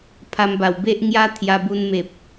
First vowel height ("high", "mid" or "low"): low